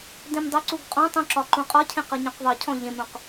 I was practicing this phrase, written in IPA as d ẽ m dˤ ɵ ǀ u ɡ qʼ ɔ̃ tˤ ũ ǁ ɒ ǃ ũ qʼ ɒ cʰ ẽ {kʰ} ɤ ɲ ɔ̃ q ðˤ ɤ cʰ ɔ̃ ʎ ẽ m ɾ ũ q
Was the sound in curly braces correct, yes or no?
no